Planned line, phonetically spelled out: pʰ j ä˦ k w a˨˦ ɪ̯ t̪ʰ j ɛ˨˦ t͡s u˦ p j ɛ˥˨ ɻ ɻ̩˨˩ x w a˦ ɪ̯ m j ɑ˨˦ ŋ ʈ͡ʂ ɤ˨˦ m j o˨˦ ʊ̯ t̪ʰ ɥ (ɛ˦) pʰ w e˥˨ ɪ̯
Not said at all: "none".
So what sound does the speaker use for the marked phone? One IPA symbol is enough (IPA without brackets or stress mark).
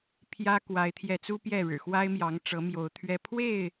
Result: ɛ˦